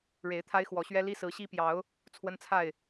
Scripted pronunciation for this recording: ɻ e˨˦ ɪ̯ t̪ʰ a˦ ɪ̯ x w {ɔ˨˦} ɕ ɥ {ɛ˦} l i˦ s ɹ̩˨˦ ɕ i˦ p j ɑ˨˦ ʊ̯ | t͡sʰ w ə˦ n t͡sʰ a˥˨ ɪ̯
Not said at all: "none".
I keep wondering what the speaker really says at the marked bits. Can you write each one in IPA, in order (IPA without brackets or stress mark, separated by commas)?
ɔ˨˦, ɛ˦